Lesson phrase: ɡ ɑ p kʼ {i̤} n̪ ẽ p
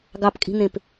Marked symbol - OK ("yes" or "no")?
yes